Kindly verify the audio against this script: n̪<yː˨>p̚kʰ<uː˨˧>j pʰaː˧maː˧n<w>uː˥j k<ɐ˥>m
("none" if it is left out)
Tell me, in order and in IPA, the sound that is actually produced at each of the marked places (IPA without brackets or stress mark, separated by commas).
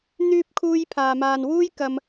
yː˥, uː˥, w, ɐ˥